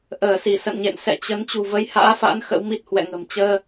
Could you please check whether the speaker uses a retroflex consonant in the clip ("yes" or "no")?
no